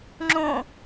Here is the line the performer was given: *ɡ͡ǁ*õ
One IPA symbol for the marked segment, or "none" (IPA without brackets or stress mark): ŋ͡ǁ